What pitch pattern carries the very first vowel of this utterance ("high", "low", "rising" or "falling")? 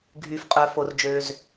low